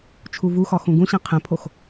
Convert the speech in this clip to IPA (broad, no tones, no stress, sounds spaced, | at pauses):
t͡ʃʰ u v u x ɒ x ũ ɡ ũ ɕ ĩ qʰ ẽ pʰ o x